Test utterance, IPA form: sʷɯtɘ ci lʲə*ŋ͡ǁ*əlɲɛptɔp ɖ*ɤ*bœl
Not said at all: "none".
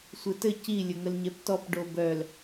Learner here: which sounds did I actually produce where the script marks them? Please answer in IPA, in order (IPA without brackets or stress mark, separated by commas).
ŋ, o